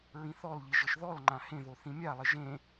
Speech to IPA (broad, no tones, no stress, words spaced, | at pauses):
ɹĩθɔlʎi ʒɪʃðɔlŋ͡ǃã hẽðo θĩmʲalˠɪ ʒẽ